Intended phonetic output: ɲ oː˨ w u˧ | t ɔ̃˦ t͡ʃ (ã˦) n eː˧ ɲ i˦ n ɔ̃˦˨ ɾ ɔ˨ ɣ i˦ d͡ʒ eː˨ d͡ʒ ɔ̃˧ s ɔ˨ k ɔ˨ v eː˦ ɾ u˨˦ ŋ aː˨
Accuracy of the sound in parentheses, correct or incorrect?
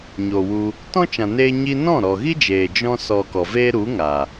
incorrect